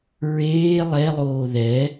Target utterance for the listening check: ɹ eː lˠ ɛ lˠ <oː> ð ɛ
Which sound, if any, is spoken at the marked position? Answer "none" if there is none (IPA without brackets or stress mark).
oː